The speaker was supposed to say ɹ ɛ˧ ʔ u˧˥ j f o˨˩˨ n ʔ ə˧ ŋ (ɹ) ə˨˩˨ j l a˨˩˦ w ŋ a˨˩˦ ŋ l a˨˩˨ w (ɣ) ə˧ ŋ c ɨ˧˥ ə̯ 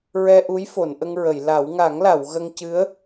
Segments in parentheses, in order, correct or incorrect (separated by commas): correct, correct